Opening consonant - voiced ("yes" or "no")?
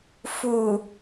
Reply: no